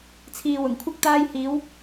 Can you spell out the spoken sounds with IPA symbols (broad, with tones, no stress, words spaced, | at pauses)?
t͡sʰiː˨wʊ˨˩ŋkʷʰɐ˥k̚ t̪aː˧j hiː˨˧w